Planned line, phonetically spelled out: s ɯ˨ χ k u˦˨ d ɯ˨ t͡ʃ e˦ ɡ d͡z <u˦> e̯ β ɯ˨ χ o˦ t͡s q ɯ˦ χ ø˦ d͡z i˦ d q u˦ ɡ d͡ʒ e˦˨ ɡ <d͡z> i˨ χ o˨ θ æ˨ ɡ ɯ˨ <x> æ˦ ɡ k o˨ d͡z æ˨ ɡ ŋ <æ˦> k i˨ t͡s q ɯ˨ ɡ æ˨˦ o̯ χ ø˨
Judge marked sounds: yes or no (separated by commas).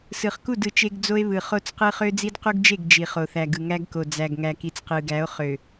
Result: no, no, no, no